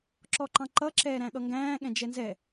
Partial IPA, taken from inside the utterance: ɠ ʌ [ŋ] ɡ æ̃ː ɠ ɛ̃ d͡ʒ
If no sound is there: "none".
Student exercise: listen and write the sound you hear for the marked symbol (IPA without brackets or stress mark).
ŋ